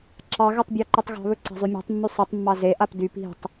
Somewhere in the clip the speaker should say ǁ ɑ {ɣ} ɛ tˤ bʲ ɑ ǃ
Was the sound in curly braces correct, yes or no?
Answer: yes